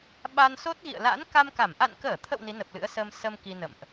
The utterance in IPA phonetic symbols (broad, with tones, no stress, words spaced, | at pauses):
ɓa˧nso˦˥t̚ ɣḭ˧˨ə̯la̰˧˥n ka˧mka˧˩m ʔa̰˧˨nkəː˧˩t̪ʰə̰˧˨w ni˨˦nə˨˩p̚lɨ̰˧˥ə̯səː˧m sə˧m ki˧nə̰˧˨mʔ